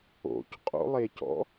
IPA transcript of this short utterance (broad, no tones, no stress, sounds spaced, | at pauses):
o̰ c qʼ o̰ lˠ e c ɔ̰